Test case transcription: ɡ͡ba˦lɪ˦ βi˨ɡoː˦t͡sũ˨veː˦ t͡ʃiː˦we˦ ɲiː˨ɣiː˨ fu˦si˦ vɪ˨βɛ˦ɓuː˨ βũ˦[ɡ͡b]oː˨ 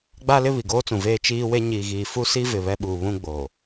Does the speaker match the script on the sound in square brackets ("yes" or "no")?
yes